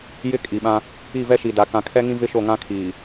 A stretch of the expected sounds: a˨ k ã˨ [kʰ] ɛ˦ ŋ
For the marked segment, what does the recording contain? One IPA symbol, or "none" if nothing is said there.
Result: kʰ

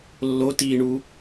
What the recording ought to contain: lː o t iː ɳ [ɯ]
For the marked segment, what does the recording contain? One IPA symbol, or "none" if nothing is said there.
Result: u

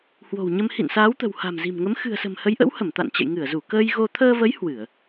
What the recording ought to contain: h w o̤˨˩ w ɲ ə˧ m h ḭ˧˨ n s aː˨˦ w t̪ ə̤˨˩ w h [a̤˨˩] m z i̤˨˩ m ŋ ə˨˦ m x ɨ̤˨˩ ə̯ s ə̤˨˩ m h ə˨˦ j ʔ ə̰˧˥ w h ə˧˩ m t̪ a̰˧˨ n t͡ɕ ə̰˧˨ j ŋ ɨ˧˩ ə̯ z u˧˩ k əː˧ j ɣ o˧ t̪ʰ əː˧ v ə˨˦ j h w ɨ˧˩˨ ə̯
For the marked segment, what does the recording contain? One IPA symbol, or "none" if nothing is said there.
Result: a̤˨˩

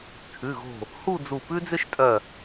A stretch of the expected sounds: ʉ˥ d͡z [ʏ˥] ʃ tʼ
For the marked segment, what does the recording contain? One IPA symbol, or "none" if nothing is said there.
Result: ʏ˥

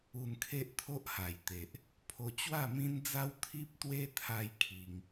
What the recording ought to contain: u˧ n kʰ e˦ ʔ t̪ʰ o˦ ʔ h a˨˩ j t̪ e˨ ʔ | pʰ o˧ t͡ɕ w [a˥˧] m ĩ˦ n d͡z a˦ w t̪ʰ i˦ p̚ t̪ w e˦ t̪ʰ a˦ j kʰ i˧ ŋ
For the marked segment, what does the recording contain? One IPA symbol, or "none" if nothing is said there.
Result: a˥˧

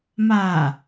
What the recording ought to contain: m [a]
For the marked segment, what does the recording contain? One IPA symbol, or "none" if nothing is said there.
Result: a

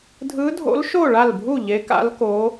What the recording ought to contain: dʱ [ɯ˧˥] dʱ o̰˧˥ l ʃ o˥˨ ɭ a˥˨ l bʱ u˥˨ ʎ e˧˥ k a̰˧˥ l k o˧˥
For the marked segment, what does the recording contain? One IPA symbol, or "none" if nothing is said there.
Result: ɯ˧˥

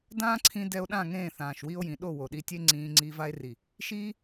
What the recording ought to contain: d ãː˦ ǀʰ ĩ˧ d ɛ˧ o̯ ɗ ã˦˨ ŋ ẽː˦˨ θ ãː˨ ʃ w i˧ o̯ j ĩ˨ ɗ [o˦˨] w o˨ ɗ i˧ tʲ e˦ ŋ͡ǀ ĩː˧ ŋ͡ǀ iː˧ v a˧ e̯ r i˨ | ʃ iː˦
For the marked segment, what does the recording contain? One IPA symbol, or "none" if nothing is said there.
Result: o˦˨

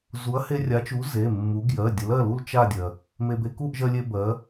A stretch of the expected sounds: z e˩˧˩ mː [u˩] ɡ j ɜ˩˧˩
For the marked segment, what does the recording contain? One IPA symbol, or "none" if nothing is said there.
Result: u˨˥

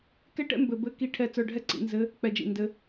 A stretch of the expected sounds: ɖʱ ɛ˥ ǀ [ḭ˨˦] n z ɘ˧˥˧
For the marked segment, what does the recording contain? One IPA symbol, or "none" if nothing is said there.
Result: ḭ˨˦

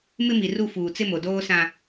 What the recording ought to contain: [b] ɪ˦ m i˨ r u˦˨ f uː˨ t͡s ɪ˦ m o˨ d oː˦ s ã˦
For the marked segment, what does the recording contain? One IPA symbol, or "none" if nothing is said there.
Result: m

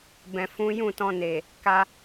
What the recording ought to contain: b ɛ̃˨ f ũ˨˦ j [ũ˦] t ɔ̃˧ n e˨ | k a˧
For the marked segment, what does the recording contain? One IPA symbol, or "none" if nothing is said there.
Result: ũ˦˨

